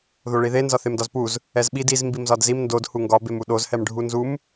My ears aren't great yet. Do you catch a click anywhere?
no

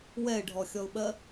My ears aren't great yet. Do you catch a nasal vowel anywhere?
no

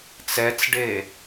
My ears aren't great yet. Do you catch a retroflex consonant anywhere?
yes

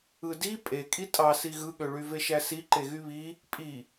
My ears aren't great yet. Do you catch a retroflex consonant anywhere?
yes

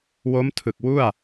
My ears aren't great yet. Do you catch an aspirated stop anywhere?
yes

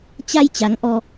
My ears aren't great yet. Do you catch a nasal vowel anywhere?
no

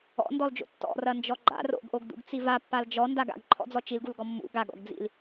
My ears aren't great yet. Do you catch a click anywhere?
yes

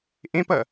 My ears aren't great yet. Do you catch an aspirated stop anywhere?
no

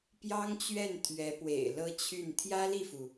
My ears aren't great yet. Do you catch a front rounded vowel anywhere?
yes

